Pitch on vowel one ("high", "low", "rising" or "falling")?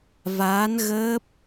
rising